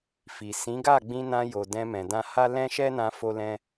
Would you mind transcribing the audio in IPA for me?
fi˨ sĩ˨˦ɡa˦˨ɡ͡bĩ˧ nã˧jo˨ dɛ̃˧mɛ̃˨ dã˧ha˦ lɛ̃˦ʃɛ˦nã˧ fo˧lɛ̃˧

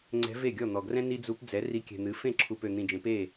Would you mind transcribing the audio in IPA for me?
ŋ͡ǀɛ̤˧˥ve˥˩ɡʲɔ˥˩ n̪ɔ˨ɡrɛ̃˥ ni˥d͡zu˧˥p d͡zɛ˩˥ ri˧˥kʲɛ̤˨n̪ɨ˩˥ fẽ˥˩ǁʰu˨pø˨ n̪ĩ˨d͡ʒẽ˩˥pe˥˩

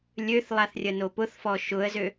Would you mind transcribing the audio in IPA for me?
lʲøθlˠaθrʲəno pʊθfɔ ʃʊə̯zø

